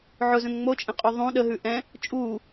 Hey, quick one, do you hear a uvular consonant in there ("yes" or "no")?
yes